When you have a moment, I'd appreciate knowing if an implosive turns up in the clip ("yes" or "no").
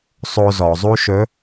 no